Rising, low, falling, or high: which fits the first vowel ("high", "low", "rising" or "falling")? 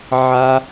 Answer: high